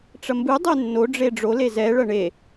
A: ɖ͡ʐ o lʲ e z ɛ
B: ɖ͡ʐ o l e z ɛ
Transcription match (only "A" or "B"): B